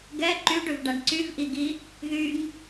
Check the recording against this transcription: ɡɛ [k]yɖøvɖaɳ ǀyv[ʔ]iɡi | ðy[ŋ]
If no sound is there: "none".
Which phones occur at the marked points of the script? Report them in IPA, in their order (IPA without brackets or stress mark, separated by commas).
ǃ, ʔ, ŋ